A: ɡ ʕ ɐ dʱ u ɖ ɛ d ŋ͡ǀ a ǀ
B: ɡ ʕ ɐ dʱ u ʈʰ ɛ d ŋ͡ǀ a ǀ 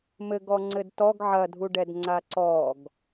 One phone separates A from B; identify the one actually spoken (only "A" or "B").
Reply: A